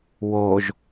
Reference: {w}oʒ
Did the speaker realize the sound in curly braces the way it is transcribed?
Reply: yes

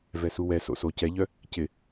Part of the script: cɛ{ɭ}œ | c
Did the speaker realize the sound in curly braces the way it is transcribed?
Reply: no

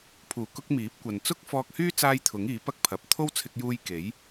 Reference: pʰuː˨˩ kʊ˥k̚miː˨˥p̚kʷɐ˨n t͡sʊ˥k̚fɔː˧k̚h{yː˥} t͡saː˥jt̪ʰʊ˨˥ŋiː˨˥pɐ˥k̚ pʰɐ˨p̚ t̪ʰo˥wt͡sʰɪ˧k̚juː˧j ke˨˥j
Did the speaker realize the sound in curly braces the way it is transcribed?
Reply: yes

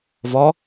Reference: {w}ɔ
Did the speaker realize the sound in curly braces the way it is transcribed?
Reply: no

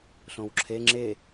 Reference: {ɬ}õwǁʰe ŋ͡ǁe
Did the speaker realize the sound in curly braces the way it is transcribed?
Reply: yes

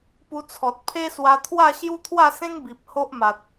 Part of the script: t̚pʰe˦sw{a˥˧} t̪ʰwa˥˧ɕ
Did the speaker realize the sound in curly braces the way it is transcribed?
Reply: no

